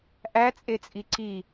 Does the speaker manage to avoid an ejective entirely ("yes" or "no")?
no